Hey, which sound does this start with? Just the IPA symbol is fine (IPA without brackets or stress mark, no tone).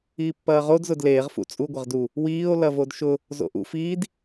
iː